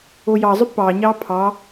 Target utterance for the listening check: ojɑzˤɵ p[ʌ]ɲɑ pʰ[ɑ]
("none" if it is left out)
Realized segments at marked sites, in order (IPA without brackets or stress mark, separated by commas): ɑ, ɑ